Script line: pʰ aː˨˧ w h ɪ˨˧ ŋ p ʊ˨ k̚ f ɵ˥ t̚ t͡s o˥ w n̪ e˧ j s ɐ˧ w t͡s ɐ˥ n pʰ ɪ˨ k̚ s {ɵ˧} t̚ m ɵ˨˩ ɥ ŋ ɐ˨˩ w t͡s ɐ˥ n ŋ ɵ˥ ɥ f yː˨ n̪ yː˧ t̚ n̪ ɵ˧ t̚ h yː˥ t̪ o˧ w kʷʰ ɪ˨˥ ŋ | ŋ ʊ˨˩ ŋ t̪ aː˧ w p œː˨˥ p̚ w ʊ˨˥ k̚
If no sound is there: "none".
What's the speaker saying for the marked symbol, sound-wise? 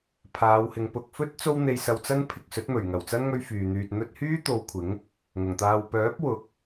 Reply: ɵ˨˥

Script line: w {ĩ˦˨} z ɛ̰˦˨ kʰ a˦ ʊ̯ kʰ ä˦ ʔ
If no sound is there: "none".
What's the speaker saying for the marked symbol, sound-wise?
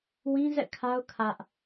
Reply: ĩ˦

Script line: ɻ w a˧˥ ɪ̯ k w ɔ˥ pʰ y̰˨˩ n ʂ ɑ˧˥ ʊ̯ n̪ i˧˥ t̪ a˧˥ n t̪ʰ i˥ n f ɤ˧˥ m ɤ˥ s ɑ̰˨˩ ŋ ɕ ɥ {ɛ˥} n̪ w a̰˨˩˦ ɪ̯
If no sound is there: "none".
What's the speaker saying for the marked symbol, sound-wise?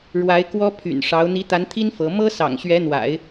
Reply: ɛ˧˥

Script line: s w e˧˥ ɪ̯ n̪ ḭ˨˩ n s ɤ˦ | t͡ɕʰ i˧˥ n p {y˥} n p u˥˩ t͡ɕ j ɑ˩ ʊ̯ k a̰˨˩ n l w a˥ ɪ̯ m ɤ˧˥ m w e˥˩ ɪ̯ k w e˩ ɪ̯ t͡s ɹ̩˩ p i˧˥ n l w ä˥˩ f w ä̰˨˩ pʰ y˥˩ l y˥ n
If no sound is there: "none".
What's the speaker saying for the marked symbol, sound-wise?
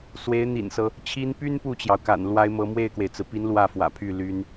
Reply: y˥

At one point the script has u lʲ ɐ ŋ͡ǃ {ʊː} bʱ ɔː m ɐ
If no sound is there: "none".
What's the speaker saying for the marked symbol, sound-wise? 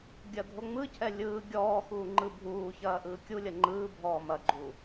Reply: ɯː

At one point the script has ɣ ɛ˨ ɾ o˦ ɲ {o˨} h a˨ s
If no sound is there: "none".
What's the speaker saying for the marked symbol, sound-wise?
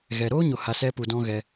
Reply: o˨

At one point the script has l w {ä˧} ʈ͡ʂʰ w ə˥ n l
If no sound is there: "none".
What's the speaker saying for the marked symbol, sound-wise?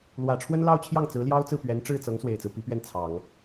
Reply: ä˨˩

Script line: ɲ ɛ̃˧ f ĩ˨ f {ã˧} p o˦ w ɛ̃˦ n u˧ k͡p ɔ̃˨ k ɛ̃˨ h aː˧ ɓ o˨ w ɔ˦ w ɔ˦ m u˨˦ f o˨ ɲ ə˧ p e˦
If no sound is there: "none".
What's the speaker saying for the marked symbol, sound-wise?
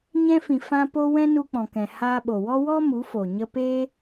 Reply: ã˧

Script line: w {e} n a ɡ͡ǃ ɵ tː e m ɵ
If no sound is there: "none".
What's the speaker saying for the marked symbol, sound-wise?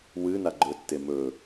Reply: ɨ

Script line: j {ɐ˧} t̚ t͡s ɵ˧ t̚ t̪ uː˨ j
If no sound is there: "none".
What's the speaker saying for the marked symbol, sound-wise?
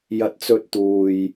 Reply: ɐ˧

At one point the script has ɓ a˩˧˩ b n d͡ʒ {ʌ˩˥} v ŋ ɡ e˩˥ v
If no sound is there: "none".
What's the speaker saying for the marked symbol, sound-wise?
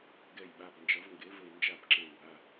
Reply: ʌ˩˥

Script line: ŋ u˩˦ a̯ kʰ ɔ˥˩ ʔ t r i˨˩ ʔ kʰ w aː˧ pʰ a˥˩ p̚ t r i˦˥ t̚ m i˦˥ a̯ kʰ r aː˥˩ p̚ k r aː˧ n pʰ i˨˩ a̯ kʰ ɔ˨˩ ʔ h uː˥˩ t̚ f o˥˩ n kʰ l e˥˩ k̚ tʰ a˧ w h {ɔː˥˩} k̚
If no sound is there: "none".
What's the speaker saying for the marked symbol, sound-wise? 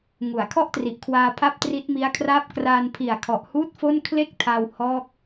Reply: ɔː˥˩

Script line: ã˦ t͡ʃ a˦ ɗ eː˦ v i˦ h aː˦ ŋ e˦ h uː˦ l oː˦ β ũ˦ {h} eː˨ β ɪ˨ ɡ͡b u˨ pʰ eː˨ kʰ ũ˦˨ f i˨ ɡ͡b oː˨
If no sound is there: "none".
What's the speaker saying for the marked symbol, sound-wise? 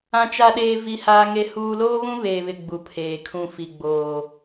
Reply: β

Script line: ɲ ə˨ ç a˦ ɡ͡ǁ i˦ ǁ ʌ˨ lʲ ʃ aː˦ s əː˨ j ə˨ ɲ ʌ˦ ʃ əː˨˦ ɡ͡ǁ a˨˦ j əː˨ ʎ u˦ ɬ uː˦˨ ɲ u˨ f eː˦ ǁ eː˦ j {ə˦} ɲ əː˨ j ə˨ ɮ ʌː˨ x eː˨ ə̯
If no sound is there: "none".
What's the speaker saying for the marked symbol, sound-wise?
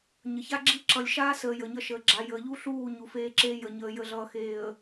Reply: ə˨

